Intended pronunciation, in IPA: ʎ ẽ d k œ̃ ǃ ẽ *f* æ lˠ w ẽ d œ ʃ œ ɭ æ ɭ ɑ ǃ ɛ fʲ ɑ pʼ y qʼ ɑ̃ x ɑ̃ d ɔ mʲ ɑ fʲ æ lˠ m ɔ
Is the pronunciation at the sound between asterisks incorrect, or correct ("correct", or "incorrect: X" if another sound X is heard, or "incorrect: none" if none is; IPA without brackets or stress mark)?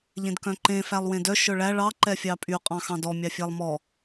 correct